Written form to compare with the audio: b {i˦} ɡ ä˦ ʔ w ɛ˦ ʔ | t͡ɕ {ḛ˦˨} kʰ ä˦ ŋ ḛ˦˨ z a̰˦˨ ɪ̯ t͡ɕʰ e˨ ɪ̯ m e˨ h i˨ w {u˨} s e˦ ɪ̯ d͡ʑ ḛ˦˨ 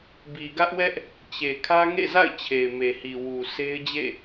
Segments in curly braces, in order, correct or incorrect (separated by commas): incorrect, incorrect, correct